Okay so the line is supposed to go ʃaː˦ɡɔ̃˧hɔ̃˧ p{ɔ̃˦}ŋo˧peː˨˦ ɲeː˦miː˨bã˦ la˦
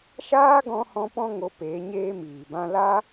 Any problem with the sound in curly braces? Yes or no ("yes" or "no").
no